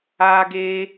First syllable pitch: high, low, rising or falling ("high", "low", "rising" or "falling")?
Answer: high